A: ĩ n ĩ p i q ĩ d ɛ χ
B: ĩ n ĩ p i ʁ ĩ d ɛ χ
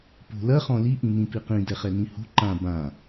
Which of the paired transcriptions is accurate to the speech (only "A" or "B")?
A